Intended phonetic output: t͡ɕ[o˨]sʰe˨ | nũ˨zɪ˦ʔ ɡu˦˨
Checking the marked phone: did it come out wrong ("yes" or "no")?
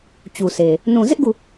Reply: yes